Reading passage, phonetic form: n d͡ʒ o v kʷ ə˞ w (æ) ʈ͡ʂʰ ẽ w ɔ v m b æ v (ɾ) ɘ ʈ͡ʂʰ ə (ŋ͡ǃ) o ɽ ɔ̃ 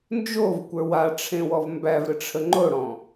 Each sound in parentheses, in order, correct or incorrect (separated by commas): incorrect, correct, correct